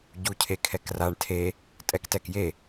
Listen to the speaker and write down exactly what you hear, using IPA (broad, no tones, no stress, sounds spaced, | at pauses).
ɟ u cʰ e kʰ ɛ k r a ɳ tʰ e | tʼ ɛ k t ɛ k j e